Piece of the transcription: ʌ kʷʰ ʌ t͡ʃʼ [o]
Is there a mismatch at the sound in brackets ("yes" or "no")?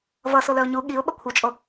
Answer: no